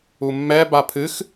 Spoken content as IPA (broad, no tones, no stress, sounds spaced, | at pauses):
u mː ɛ b a pʰ ɨ x